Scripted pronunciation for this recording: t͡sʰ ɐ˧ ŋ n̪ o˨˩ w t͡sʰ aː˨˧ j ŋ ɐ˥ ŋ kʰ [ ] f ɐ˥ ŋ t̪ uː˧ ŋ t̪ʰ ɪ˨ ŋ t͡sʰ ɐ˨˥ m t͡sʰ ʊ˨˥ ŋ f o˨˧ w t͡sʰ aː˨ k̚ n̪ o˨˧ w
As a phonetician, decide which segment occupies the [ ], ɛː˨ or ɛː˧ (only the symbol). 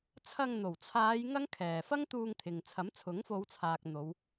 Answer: ɛː˨